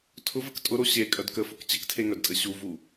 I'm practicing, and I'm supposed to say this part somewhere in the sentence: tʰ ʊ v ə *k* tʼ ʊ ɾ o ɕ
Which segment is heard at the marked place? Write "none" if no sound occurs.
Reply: k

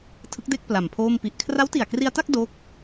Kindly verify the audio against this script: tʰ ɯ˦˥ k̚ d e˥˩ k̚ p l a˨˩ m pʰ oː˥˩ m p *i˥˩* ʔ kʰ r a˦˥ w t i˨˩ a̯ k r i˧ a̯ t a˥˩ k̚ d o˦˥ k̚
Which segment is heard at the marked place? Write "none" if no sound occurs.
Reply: i˦˥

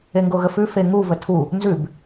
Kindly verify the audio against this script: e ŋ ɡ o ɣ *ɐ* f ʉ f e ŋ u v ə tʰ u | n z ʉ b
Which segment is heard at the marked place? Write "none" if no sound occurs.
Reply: ə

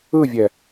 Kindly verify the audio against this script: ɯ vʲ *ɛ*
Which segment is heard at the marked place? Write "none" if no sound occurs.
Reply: ɛ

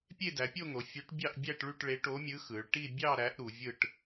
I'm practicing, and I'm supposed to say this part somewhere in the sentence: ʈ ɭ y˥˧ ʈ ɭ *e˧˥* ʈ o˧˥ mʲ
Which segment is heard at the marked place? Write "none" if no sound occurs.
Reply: e˧˥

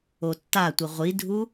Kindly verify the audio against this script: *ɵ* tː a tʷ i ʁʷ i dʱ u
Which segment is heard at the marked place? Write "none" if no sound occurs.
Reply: o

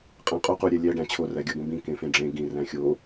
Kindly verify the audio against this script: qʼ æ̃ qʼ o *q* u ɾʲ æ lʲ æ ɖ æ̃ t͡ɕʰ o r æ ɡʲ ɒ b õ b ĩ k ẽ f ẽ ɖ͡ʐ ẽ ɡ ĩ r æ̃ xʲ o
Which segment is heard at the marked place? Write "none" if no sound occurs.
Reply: q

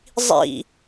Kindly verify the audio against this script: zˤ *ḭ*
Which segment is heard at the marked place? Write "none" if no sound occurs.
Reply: ḭ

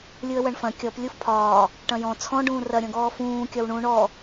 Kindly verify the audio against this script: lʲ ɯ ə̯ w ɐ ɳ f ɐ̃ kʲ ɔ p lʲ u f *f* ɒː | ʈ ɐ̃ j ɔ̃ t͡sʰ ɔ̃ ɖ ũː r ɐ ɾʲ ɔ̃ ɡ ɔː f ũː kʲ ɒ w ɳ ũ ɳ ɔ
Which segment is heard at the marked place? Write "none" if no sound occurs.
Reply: pʰ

